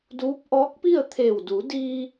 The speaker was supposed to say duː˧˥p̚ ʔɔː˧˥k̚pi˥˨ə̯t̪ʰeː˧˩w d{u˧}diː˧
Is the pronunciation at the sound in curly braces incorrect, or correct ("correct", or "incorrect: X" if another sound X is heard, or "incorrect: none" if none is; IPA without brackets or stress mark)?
incorrect: u˩˧